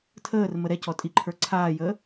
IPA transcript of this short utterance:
tʰəːrmə ɾɛcɔ tʼiǃʰə˞ ǀʰaːjəː

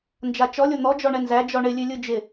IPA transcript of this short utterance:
nd͡ʒat͡ʃɔlʲo n̪ɔ d͡ʒɔɳɛnzæ d͡ʒɔɳɪ lʲʉlʲɯd͡ʒɪ

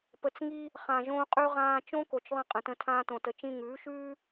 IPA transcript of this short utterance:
pə˨˦t͡sŋi˦ | χã˨ʒõː˧qʼʉ˧ ʁãː˧ t͡ʃõ˦ko˨t͡ʃ ðˤĩ˧qʼə̃˨tə̃˧ tʰãː˦tõ˧tə˧ t͡ʃĩ˧ŋʉː˨˦ʃʉː˦

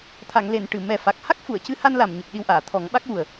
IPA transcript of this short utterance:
t̪ʰa˨˩˨ŋle˨˩˨n ʈɨ˨˩˨ mɛ˨˩fa˨˩k̚ ha˦˥k̚fu˨˩˨ə̯cɨ˧ha˧n la˨˩mɲɨ˨˩k̚ ɗi˧wʔaː˨˩˨ t̪ʰɔ˨˩˦ŋɓa˦˥k̚wu˨˩ə̯

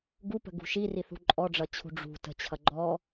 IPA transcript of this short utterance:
ɡupə̤ɡṳ ʃiriθṳ ǃʼɔɖ͡ʐʌt͡ɕʰṳ ɖ͡ʐṳ tə̤t͡ɕʰʌ ɡ͡ǃɔ

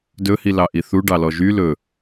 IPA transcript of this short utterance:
dɵhi lɑʔiθu ɖɑlɔʒy lɵ

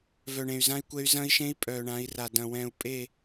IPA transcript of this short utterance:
vœ˨ɳẽ˨y̯zã˦i̯kʷɛ˦y̯ zɐ̃˦i̯ʃẽ˦i̯ pʼœː˨ɳã˨˦i̯ra˨ dɐ̃˨wɛ̃ː˨u̯ pʼe˦˨

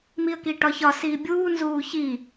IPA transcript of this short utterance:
miə̯kiʈɒçɒ siːbʲuː nzuːçi

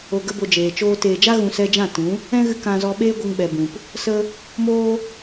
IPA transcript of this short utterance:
o˨ɡə˧bo˨ d͡ʒeː˨t͡ʃoː˦ teː˨d͡ʒa˦ɣũ˨ sɛ˧d͡ʒã˦˨tũ˨˦ | ɛ̃˦ɣɨ˧ kã˧zɔ˧ ɓeː˦ɡʷə˧ŋɓɛ˨ bũ˨p | sə˦ | moː˦

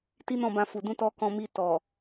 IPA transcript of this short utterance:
ti˦nɔ̃˦˨bã˧fu˨ dũ˧tɔ˧ kɔ̃˧mi˧ tɔ˨

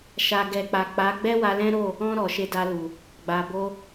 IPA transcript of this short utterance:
ʃa˨ɡɛ˨k͡pa˨ k͡pa˨˦ ɡ͡bɛ˦wa˧lɛ̃˦ɾo˦˨ | ɔ̃˧ ɾɔ˨ʃe˧da˧lu˨ | ɡ͡ba˨ bo˧

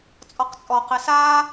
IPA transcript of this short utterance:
t͡sʼɔqt͡sʼɔ qesaː

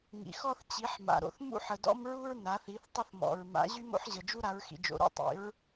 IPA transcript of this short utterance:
ŋḭ˩˧xɔ˦θ t͡ɕi˩˧ħma̰˩ɾo̰˩θ mṵ˦ħə˩dɔ̰˦m ɹu˦ɹna˩˧θi˩˧θ tˤə˦θmɔ̰˩ɹ ma̰˩˧ ʑy˦mo̰˦ħʑə˩ d͡ʒu˦ɾa˩˧ɹxḭ˩d͡ʒo̰˩ ɾo̰˦tˤḭ˩˧ɹ

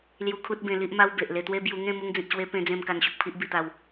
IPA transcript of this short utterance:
lju˧kʰu˦t̚bẽ˧ li˦ʔma˦w be˨ʔle˧t̪we˦ bju˧ŋẽ˥˧ mu˧ŋd͡zĩ˨t̚ɕwe˧ pẽ˧d͡zẽ˧m ka˧nɕu˨k̚pʰi˦ʔ bi˧t̪a˧w

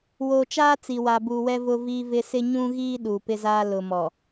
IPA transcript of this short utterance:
woː˨t͡ʃaː˦ t͡si˨wa˨buː˨wɛ˦ vʊ˦viː˦vɪ˦ sɪ˦ɲũ˦ɣiː˦ ɗu˨pɪ˦zaː˦ lʊ˨mɔ˨

